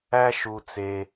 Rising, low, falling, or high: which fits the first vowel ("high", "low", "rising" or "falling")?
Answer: high